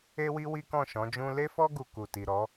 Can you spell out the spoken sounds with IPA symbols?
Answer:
e˦ w i˦ w i˦ k ɔ̃˦˨ ʃ ɔ̃˨˦ d͡ʒ ũ˦ l e˦ f ɔ˦ ɡ u˧ k u˨ t i˨ ɾ ɔ˨˦

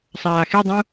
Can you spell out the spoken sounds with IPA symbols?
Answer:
sˤ aː x e dˤ ũ

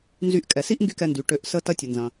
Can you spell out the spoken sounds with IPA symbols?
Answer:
n z y˧ ʔ kʼ ɛ˩ s i˥ ʔ ŋ ɡ y˥ k ɛ˧ n d y˩ ʈ ø˧ ʔ s ə˥ t ɐ˧ tʲ ə˩ n z ɐ̃˩

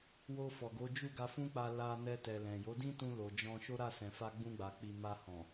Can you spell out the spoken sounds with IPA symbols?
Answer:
w o˧ f ɔ˨ ɡ o˨˦ d͡ʒ u˦˨ ɡ a˧ f ũ˦ k͡p a˧ l a˧ n ɛ˧ t ɛ˨ l ɛ̃˨ j o˨˦ d ĩ˦ t ũ˧ l o˨ d͡ʒ ɔ̃˧ ʃ o˦ ɾ a˦˨ s ɛ̃˨ f a˧ ɡ͡b ũ˧ ɡ͡b a˨ k͡p i˨ m a˧ h ɔ̃˨

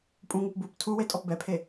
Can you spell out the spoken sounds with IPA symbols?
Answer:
pʼ ũ ŋ u p b u p tʰ u w e tʼ ɔ p b ɛ pʰ e

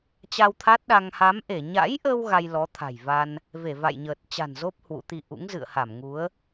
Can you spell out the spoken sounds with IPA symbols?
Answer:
t͡ɕ a˧ w t̪ʰ a˦˥ t̚ ɗ a˧ ŋ h a˨˦ m ʔ e˧˩ ɲ a̰˧˥ j ʔ ə˧ w ɣ a˧ j l ɔ˨˦ t̪ʰ a̤˨˩ j v a˧ n | v e˧˩ v a̰˧˨ j ɲ əː˨˩ t̚ t͡ɕ a̤˨˩ n z o˦˥ p̚ h w ṵ˧˥ t̪ i˧ ʔ ṵ˧˥ ŋ z ɨ̰˧˨ ə̯ h a˧˩ m ŋ u˨˦ ə̯

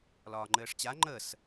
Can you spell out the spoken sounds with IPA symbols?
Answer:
l ɒː ŋ͡ǃ ɘː ʂ t͡ɕ a ŋ͡ǃ ə s

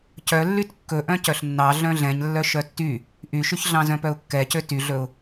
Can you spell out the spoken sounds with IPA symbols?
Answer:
c œ lː y t kː ɵ ʔ œ̃ c œ ɬ nː ɑ ɮ œ̃ ɮ ɛ̃ ɲ lː œ ʃ œ tː y | ʔ y ʃ y ç ɮ ɑ̃ z œ̃ p œ ʊ̯ kː ɛ c ø t y ɮ ɵ ʊ̯

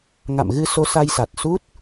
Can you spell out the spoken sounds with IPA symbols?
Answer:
ŋ a̰˧˨ m ɣ ɨ˧ s o˧ s a˧ j s a˨˩ t̚ s u˦˥ t̚

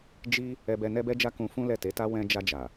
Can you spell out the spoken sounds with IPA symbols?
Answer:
d͡ʒ i˦ | ɛ˧ b ɛ˧ n ɛ˦ b ɛ˦ d͡ʒ a˦ k ũ˧ f ũ˦ l ɛ˦˨ t e˨˦ t a˦ w ɛ̃˧ d͡ʒ a˧ d͡ʒ a˨

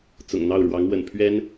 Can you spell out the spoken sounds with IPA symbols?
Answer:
t͡s ʊ̰˨˩ ŋ n̪ ɑ˥˩ ʊ̯ ɻ w ɑ˧˥ ŋ w ə̰˨˩ n pʰ ɥ ɛ˥ n

